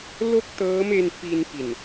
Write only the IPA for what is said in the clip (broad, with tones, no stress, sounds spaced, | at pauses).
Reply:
l o˥˩ k̚ t ɤː˦˥ m e˧ n f i˧ n p i˨˩ n